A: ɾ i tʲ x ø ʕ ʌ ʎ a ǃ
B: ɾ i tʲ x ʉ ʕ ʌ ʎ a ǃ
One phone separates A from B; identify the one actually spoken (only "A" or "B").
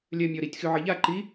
B